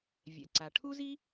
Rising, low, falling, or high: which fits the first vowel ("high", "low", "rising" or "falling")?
low